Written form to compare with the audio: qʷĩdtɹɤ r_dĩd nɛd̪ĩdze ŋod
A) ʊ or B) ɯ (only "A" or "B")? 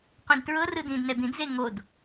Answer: B